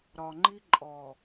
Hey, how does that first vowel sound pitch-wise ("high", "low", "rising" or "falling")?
low